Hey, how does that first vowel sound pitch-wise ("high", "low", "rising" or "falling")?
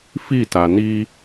falling